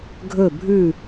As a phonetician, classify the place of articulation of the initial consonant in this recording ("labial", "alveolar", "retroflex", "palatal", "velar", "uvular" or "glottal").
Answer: velar